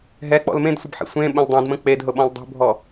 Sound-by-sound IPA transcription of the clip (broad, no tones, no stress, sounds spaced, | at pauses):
ɦ ɛ k͡p ɔ̰ l m ẽ d sʷ ə b ħ ḭ sʷ ẽ ɓ ə̃ l dˤ ĩ d m ə̃ k͡p e d ɦ ʊ ɓ ɔ̃ l dˤ ṳ bʱ ɔ